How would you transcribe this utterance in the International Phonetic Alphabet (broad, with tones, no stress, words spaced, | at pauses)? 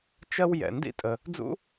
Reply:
t͡ʃɜ˦w jɛ̰˩ndḭ˥tʼə˩ | d͡zṵ˥